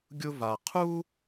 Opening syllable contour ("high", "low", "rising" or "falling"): high